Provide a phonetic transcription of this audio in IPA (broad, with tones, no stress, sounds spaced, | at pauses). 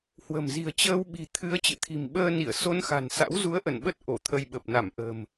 h w ə̤˨˩ m z i̤˨˩ ə̯ t͡ɕ əː˧ w ɓ i̤˨˩ t̪ʰ ɨ˨˦ ə̯ t͡ɕ ɨ̰˧˨ t̪ʰ i̤˨˩ m ɓ əː˧ n i˧˩ ə̯ s o˧ n x a̤˨˩ n s a̰˧˥ w z u˨˦ ə̯ ʔ ə˧˩ n ɓ ə˦˥ t̚ ʔ o˧˩ t̪ʰ ə˧ j ɓ ə˨˩ p̚ n a˧˩ m ʔ ə̤ː˨˩ m